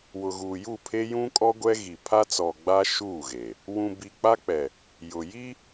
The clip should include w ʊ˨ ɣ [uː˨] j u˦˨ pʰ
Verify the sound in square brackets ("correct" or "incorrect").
correct